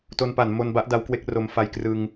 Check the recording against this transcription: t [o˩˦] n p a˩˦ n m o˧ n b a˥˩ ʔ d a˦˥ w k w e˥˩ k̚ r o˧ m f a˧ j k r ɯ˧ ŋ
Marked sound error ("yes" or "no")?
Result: yes